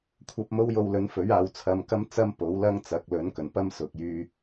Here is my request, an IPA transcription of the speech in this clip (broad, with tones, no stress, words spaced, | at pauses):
kʷʰɐ˧p̚ mo˥wjo˧wlɵ˨˥n fɵ˨˥ɥaː˨wt͡sʰɐ˧m kɐ˥mt͡sɐ˥m po˨˥wlɐ˥ŋ t͡sɐ˨˥k̚ lɵ˨˥nkɵ˨˩npɐ˥m sʊ˨k̚jyː˧